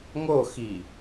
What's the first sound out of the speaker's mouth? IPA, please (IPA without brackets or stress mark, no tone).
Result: ŋ